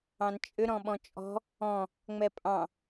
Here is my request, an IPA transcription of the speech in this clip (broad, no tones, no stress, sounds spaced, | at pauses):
ɑ̃ n t͡ʃʼ ʏ ɾ ɔ̃ ɓ ɔ̃ t͡ʃʼ ɔ̤ | ɔ̃ | ŋ͡m ɛ pʼ ɑ̃